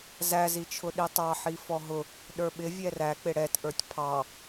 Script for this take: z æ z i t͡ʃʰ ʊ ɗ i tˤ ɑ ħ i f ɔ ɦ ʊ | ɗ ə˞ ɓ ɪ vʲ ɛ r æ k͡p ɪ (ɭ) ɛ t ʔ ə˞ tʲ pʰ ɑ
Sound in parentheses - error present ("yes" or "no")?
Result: yes